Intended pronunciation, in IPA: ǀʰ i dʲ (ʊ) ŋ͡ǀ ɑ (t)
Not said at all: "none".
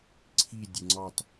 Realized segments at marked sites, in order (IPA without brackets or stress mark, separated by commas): ʊ, t